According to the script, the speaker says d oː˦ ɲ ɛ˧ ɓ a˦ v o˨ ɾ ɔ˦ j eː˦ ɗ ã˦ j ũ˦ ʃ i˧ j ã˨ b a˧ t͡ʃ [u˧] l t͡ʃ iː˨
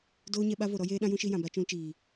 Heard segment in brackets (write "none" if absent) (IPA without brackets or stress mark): ũ˧